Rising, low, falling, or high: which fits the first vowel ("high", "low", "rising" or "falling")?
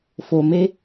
low